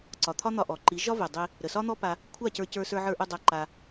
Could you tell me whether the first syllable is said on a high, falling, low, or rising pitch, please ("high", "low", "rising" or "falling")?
low